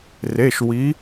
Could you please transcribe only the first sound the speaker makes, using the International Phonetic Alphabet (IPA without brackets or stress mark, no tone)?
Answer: r